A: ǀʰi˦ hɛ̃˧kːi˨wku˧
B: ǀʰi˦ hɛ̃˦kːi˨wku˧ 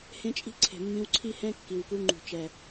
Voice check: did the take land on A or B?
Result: B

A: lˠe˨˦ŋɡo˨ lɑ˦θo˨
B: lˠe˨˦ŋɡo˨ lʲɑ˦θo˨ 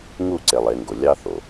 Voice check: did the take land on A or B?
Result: B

